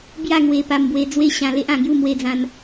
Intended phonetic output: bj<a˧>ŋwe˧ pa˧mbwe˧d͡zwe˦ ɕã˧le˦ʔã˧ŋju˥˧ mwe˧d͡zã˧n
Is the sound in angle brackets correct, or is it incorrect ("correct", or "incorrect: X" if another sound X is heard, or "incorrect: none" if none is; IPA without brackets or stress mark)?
incorrect: a˥˧